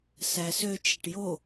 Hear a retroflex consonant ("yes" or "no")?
yes